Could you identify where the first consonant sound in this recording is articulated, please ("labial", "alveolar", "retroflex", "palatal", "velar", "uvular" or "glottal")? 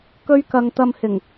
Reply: velar